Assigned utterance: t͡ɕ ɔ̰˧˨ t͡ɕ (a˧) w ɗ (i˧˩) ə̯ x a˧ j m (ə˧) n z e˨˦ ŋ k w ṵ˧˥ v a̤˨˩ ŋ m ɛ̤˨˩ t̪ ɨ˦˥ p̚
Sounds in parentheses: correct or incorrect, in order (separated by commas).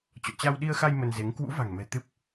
correct, incorrect, correct